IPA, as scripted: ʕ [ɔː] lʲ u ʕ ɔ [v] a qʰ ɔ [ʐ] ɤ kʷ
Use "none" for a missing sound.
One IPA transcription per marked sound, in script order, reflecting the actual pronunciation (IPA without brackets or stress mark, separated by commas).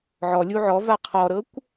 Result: ɔ, v, ɾ